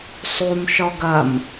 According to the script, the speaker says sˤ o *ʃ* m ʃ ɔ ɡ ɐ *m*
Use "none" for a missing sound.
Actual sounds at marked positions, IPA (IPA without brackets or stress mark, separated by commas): none, m